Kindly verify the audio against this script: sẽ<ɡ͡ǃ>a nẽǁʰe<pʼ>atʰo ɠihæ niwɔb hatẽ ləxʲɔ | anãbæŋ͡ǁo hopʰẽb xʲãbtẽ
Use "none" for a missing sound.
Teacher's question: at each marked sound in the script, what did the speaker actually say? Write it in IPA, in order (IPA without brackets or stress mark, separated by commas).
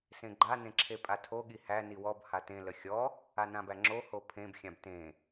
ɡ͡ǃ, pʼ